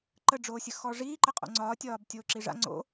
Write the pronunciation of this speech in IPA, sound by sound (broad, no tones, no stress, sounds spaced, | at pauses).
ǃ ə ɖ͡ʐ oː sʲ ə x ɔ ʐ iː ǃ ə qʼ o̰ ŋ͡ǀ ɒː tʲ ɒː b tʲ oː ǁ i ʐ a̰ ŋ͡ǀ o̰